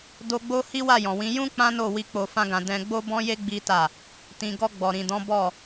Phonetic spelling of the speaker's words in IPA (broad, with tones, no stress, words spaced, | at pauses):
do˧ɡ͡bo˦ hi˦wa˦˨jɔ̃˨wĩ˨˦ jũ˦ k͡pã˦no˦˨wi˧ k͡po˧fã˦ɡã˧ dɛ̃˧ ɡ͡bo˦bɔ̃˦je˦ ɡ͡bi˦ ta˦˨ | tĩ˨ ɡɔ˧ ɡ͡bɔ˨ɾĩ˨dɔ̃˨˦ bɔ˦˨